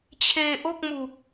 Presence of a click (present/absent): absent